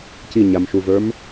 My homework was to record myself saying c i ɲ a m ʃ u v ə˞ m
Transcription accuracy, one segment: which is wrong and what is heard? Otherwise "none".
none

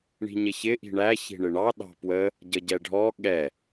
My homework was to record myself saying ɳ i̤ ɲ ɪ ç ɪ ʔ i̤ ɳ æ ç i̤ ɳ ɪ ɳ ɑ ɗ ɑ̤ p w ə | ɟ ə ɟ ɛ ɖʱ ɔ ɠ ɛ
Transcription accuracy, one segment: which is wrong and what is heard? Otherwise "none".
none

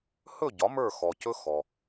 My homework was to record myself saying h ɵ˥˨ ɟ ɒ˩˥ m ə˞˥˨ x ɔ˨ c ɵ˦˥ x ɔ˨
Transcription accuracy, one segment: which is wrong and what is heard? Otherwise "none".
none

